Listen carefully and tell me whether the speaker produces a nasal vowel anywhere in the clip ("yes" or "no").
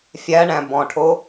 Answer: yes